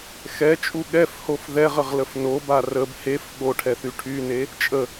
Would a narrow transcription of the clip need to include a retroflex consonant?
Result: yes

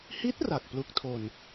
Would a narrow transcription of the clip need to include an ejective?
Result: no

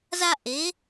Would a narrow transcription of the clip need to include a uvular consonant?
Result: no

